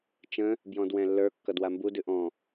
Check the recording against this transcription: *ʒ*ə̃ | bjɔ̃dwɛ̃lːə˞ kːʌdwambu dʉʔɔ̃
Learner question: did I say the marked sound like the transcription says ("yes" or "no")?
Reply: no